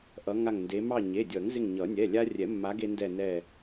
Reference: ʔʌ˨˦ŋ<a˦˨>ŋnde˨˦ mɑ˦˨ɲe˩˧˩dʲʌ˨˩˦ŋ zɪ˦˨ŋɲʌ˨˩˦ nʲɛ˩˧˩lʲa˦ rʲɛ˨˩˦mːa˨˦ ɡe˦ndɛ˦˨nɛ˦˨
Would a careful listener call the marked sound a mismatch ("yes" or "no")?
no